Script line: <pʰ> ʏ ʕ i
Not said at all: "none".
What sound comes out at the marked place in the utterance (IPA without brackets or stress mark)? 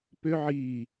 p